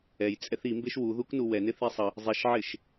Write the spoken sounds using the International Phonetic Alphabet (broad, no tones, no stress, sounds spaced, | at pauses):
ɛ j t͡sʼ ɛ θ i m b e ʃ w u ð u k n u w ɛ n ɪ θ i sˤ ə | zˤ i ʃ ʕ ɪ ʃ